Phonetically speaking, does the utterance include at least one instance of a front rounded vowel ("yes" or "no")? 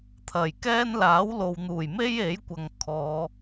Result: no